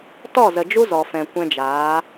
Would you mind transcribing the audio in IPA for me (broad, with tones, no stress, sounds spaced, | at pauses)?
t ɔ˦˨ z ə˨ d͡ʒ u˦ z ɔ˨ f ɛ̃˨ kʷ ɛ̃˧ d͡ʒ aː˨˦